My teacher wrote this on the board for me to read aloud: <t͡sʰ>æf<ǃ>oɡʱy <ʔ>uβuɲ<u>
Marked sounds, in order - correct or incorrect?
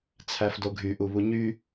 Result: correct, incorrect: d, correct, incorrect: y

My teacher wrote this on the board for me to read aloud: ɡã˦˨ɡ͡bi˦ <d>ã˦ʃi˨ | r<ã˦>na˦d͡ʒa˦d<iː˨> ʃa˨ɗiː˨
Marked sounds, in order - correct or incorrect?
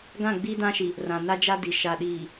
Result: correct, incorrect: ã˨, incorrect: i˨

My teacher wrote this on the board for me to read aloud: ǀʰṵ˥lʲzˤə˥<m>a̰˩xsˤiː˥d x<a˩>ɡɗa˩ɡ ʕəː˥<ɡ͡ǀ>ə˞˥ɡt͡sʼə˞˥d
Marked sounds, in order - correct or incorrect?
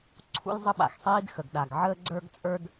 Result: incorrect: ɓ, incorrect: ə˩, correct

